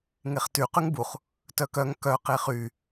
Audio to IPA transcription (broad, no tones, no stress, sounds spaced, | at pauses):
ŋ e χ t y q y ŋ b u χ | t œ k œ ŋ k œ q e χ y